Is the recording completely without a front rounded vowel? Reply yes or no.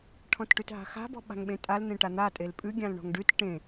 yes